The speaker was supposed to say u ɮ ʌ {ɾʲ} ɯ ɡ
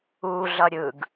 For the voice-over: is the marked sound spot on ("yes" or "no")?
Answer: yes